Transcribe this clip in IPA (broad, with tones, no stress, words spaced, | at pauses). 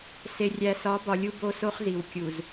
se˨rʲæ˨sɒ˨˦bɒ˨ lʲu˦bo˦so˦χzi˨w kʲu˨z